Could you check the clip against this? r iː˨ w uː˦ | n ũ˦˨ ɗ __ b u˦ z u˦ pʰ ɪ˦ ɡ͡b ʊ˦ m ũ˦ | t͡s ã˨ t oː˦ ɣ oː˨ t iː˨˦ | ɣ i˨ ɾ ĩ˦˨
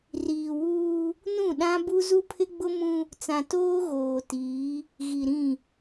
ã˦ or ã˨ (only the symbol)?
ã˦